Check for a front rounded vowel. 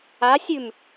absent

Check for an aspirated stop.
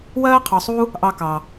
present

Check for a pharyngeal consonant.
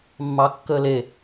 absent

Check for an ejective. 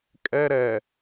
present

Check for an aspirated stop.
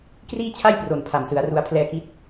present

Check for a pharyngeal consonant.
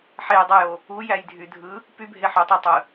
present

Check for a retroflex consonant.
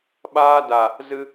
absent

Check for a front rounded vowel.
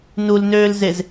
present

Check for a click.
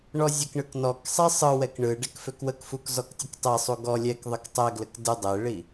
absent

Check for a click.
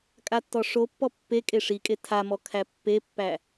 absent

